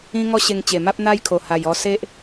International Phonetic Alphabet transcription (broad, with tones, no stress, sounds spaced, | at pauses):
ĩ˦ ŋ ɔ˦ ɕ e˧ ŋ t͡ɕ e˨˩ m a˦ p̚ n̪ a˦ j kʰ o˨˩ h a˨˩ j ɔ˧ s e˦ ʔ